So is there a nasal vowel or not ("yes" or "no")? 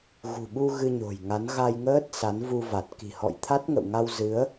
no